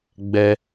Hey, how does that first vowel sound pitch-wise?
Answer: high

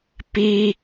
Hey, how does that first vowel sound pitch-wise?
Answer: high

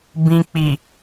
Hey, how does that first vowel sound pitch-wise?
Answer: low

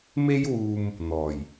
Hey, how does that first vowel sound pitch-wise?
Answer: high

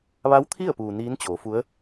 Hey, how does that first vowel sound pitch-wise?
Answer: rising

